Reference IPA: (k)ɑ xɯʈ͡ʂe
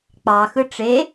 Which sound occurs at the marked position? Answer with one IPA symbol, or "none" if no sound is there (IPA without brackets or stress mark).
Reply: k͡p